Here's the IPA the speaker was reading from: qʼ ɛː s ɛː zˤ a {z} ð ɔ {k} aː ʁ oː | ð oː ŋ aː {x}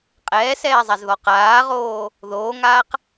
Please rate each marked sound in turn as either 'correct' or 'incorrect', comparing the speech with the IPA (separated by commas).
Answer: correct, incorrect, incorrect